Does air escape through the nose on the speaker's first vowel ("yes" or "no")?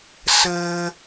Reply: no